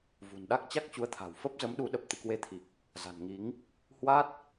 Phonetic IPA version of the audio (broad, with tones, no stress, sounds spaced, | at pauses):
v ṳ˨˩ n ɗ a˦˥ k̚ t͡ɕ a˦˥ k̚ t͡ɕ u˨˦ ə̯ t̪ʰ a̤˨˩ w f ə˦˥ p̚ z ə˨˦ m ɗ u˨˦ ɗ ə˨˩ p̚ t̪ ɨ̰˧˨ k w e˧ t̪ʰ i˨˩ k̚ | z a̤˨˩ n ŋ i˨˦ ŋ | h w a˦˥ t̚